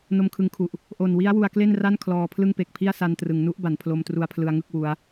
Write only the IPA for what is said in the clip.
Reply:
n o˧ m kʰ ɯ˧ ŋ kʰ u˨˩ ʔ | ʔ o˨˩ n w i˦˥ a̯ w u˧ a̯ k l e˥˩ n r a˥˩ n kʰ l ɔː˧ pʰ l ɯ˥˩ ŋ p e˨˩ k̚ pʰ i˥˩ a̯ s a˧ n t r ɯ˩˦ ŋ n u˦˥ ʔ b a˩˦ n pʰ l o˧ m t r u˧ a̯ pʰ l ɯ˧ a̯ ŋ ɯ˥˩ k̚ w u˦˥ a̯

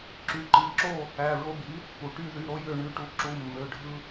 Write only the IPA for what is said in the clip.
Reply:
ǁ y˩˧˩ ǃ i˩˥ ǁ o˥˩ | æ˩˧˩ ɹ o˧ b i˩˥ | p u˩ ʈ y˧˩ ð y˩˧˩ ɾ o˧ j ø˧˩ ɳ y˩˧˩ ʈ u˩˥ ǁ u˩˧˩ mː ø˩˧˩ ɖʱ ɯ˧

